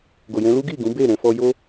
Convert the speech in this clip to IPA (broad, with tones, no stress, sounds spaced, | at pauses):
ɡ o˨ j ɛ̃˧ l u˦ ɡ i˦˨ ɡ ũ˨˦ b e˦˨ ɾ ɛ̃˧ f ɔ˧ j o˦